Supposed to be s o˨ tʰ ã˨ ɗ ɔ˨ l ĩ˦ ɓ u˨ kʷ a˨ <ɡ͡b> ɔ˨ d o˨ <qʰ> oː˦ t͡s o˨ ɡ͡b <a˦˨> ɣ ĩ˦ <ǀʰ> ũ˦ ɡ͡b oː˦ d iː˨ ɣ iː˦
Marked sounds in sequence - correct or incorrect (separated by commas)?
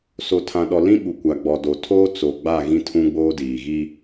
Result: correct, incorrect, correct, incorrect